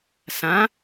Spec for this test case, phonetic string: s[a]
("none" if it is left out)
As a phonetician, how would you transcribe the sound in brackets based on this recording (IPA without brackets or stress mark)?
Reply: ã